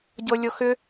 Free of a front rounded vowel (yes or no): no